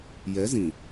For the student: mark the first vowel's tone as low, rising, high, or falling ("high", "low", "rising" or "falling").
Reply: rising